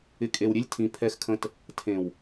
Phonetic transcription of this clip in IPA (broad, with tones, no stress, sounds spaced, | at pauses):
ɪ˨ kʼ e˨ w ɾʲ e˦ lʲ tʰ ĩ˨ pʰ ɛ˦ x kʰ ə̃˦ t | tʰ ẽ˨ w